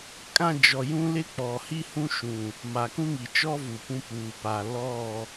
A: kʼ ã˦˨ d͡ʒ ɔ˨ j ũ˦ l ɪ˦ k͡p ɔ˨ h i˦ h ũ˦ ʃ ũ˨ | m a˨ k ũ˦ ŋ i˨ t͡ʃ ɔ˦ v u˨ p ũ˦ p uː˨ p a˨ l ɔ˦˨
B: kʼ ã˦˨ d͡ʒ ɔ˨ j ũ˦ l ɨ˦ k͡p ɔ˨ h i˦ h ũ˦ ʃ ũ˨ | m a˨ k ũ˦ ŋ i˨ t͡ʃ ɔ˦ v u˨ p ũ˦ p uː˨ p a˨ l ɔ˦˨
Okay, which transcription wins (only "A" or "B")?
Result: A